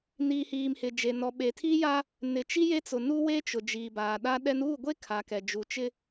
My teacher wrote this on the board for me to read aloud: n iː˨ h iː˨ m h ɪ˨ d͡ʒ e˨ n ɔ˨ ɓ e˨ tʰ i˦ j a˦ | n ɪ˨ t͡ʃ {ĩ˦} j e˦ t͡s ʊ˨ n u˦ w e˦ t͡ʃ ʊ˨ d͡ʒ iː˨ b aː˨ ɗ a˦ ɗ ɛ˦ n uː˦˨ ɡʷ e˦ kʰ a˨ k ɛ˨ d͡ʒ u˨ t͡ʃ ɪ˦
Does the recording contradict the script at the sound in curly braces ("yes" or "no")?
yes